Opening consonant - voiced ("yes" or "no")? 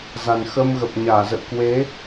yes